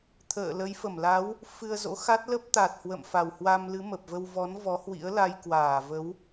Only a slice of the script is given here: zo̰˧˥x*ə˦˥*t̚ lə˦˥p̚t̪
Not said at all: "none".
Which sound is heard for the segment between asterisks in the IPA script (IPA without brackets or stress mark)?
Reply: a˦˥